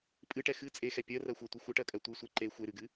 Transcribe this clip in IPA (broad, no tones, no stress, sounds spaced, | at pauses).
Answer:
pʼ ɨ ʈ ɛ x ɨ t͡sʼ e x ɛ pʲ ɜ r ɜ xʷ ɜ tʷ ɨ xʷ ɨ ʈ ɜ kʼ ɜ tʷ ɨ sʷ e ǃ e xʷ e ɾ ɨ ɡ ɨ